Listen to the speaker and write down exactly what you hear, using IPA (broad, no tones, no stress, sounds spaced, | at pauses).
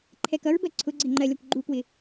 ǃʰ ɛ k ʌ ɹ b ɜ ǀʰ ʊ ɡ͡ǀ ɪ ŋ͡ǃ ɜ lʲ ɒ kʷ ɡ͡ǃ u k w ɪ